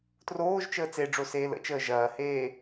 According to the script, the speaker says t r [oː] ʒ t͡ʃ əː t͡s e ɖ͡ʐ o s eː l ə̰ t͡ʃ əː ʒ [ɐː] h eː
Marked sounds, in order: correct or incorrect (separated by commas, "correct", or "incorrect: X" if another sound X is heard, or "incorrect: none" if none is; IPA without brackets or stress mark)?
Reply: correct, correct